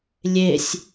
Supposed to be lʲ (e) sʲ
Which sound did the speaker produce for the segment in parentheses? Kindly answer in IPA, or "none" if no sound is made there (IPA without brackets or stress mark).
e